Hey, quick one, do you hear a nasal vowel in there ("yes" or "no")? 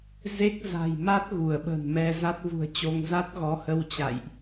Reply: no